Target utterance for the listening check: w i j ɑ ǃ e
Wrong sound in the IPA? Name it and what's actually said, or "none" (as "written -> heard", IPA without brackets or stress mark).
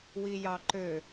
e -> ø